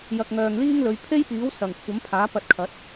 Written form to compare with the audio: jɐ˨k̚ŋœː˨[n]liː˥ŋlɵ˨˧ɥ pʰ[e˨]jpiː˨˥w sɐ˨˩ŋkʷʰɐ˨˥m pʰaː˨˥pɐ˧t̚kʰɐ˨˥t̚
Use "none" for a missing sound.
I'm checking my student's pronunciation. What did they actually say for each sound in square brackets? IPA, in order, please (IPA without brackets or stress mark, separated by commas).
ŋ, e˥